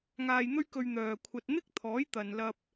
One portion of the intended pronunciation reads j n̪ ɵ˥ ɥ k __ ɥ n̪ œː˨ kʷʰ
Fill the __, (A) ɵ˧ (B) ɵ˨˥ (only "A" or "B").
A